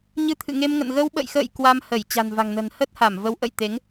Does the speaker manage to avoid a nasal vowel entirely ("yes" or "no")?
yes